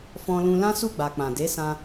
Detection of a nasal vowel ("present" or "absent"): present